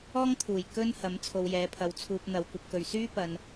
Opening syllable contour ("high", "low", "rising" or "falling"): high